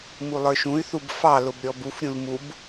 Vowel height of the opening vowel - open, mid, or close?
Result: close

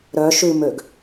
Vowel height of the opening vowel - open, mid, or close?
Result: mid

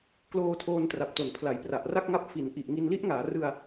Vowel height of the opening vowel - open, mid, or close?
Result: mid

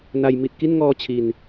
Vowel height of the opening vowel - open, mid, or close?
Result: open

